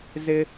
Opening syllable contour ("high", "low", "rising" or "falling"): high